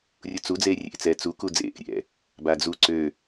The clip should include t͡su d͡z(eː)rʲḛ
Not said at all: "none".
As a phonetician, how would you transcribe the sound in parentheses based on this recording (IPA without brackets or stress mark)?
eː